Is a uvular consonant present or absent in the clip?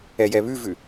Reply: absent